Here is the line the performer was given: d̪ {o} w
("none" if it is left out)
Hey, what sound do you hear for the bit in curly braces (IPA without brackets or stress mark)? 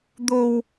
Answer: o